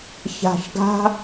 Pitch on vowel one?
low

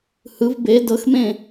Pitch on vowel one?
rising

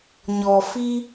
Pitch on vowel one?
low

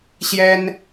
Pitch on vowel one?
high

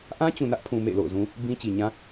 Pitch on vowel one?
high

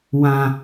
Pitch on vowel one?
low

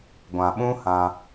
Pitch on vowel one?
low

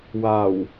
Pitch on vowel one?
low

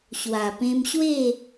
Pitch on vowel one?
low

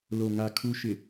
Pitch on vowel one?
low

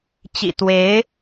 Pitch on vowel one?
low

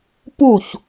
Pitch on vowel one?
falling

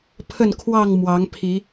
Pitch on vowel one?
falling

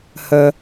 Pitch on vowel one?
low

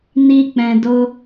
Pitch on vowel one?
high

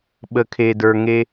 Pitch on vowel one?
low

